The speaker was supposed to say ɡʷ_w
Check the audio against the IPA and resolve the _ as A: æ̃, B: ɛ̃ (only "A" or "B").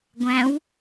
A